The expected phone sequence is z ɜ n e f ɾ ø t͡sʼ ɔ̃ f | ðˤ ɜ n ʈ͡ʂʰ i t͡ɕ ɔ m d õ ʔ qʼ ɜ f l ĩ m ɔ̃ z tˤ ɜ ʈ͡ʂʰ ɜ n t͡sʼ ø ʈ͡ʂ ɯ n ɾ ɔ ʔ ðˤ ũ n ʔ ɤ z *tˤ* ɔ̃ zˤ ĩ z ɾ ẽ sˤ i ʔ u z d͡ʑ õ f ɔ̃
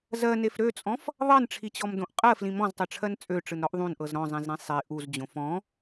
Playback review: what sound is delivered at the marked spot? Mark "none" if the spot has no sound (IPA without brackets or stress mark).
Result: ɾ